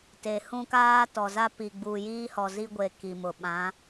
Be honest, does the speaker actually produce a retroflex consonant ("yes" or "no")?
no